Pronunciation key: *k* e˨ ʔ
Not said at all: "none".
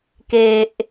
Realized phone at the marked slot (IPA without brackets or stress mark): k